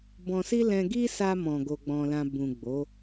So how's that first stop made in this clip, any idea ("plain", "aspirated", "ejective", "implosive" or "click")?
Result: plain